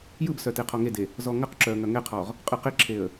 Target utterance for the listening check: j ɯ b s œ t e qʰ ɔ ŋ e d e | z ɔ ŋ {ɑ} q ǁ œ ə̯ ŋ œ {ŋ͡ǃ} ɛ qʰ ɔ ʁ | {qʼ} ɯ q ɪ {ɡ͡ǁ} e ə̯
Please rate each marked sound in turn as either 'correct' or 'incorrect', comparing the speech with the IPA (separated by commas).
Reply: incorrect, incorrect, correct, incorrect